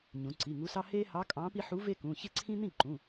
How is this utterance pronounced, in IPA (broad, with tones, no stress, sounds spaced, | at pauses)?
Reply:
ɲ ũ˩˧ ǀ i˩˧˩ ŋ u˧˥ s ɑ˥ h e˥ h ɑ˧˥ kʼ ɑ̃˧˥ p i˥ ħ u˧˥ v e˥ k ũ˩˧˩ ç e˥ ǀʰ ĩ˥ n̪ ĩ˥˩ ǃ ũ˩˧˩